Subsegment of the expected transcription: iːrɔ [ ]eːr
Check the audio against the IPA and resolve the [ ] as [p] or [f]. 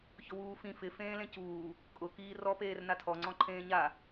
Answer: p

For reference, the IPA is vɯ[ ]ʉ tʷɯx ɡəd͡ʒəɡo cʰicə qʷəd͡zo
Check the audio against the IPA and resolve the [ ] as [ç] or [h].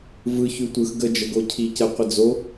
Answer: ç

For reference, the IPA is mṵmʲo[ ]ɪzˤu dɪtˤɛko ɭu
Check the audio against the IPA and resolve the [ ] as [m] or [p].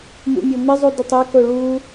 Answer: m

